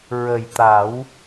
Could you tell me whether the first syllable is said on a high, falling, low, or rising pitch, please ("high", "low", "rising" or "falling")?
low